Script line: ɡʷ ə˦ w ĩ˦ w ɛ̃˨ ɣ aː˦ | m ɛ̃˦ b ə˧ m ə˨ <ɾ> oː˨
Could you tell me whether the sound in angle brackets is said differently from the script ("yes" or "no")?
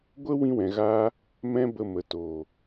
yes